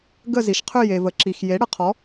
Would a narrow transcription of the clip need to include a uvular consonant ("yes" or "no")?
yes